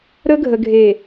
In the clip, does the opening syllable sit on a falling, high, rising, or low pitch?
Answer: high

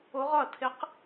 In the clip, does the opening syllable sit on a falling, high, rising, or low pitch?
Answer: rising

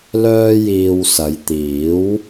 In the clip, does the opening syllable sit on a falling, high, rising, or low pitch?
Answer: high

